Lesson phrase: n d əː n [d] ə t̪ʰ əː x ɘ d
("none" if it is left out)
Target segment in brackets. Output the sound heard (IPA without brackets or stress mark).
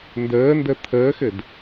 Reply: d